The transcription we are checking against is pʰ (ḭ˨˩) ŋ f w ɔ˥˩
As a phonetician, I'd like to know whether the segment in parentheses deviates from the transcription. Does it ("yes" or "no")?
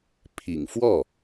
no